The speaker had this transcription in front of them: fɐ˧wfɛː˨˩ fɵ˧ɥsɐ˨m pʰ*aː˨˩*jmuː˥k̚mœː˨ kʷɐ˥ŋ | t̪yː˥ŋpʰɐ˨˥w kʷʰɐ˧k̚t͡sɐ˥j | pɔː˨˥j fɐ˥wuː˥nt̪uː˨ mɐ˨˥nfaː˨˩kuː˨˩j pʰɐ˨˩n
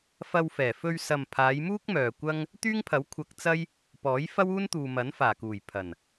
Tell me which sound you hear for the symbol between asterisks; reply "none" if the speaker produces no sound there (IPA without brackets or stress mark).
aː˨˧